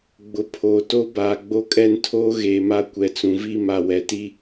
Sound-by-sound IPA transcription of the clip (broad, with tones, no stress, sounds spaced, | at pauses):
ɡ͡b ʊ˨ pʰ oː˨ t o˦ b aː˨ ɡ͡b o˦ kʼ ɛ˦ n tʰ oː˦ ɣ eː˨ m a˦ kʷ ɛ˨ t͡s ũ˨ v i˦˨ m a˨ w ɛ˨ t i˦